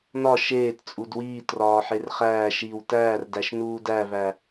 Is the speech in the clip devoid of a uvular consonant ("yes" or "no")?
no